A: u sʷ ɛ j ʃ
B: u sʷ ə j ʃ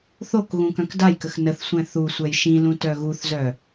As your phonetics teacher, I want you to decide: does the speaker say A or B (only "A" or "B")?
A